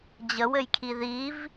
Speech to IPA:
d͡ʑ ə w ɘ j kʰ i ð i v

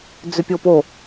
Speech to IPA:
d͡z ʏ pʲ o p o

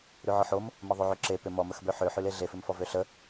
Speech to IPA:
ɾ ʉ ʕ ɔ ħ o m | m ə ðˤ o ʕ ø ǁ e p ʏ m ɔ m ə x b ø ħ ø ħ ʉ l e ɮ e f ʏ m f ɔ v ø ɬ ə

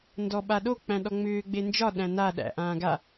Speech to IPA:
n d ɔ ɓ a ɗ o k͡p æ̃ ɗ ɔ ŋ͡m ʏː ɡ͡b e n d͡ʒ ɒ ɗ æ̃ n a ɗ æ̰ ʔ ãː ɡ a

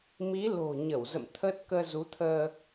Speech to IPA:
m i˨˦ l o̤˨˩ ɲ ə˧˩ w z ə̰˧˨ m t̪ʰ ə˦˥ t̚ k əː˧ z u˨˦ t̪ʰ əː˧

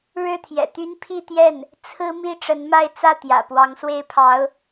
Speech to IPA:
ɻ ɻ̩˥˩ t̪ʰ j ɛ̰˨˩ t̪ y˥ n pʰ i˥˧ t̪ j ɛ˥˩ n | t͡sʰ ɹ̩˥ m i˥ ʈ͡ʂ ə˧˥ n m a˥ ɪ̯ t͡s ä˥˩ t̪ j ä̰˨˩ p w ɑ˧˥ ŋ s w e˥˩ ɪ̯ pʰ ɑ˧˥ ʊ̯

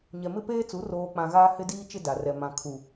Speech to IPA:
ɲ ɛ˨ m ɪ˦ p eː˦ t͡s u˨˦ r oː˨ k͡p ã˨ ɣ aː˦ h ɪ˦ d iː˦ t͡ʃ ɪ˦ d a˨ r ɛ˨ m ã˨ kʰ u˨

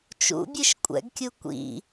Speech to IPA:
t͡ʃ ṵ bʲ ɨ ʃ kʷʼ ɛ̰ ɡ kʲ u kʷ ḭ

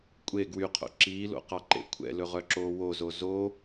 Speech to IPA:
kʷʼ e ɡ w y qʰ o̰ ǁ iː l o̰ q ɑ ǃ ḛ kʷʰ ɛ̰ l ɵ ʁ œ ǁ oː w o z o z o

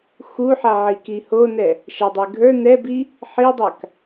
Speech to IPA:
x u ħ a ʕ i k i h o n ɛ | ʃ æ dˤ ɛ ɡʱ ə˞ n ɛ b i | ħ i dˤ a k

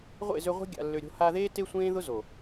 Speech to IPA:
ʁʷ ḛ˦˨ z ø˧ ʁʷ e̤˦ ɡʲ a̰˧ lː ø˧ ɾʲ o̤˦ h a˧ ð eː˦ t e˦ sʷ ẽː˦ ð ʊ˦ z o˨

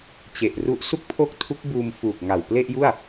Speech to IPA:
t͡ɕ e˨˩ ʔ r u˦˥ ʔ s u˥˩ k̚ pʰ o˥˩ k̚ tʰ u˦˥ k̚ b uː˧ m f uː˨˩ k̚ ŋ a˨˩ w p l e˥˩ ʔ j u˥˩ a̯

